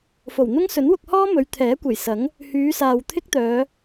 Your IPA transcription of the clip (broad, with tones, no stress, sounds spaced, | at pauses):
f o˨˩ w n̪ ʊ˥ ŋ s ɵ˨˥ n w ʊ˧ k̚ h ɔː˥ m ɵ˨˧ ɥ t̪ʰ ɛː˨˥ kʷ e˨˩ j s ɐ˨˥ ŋ | h yː˨˧ s aː˨ w t̪ʰ ɪ˥ k̚ t̪ œː˨˧